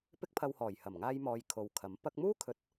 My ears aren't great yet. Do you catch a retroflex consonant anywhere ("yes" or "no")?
no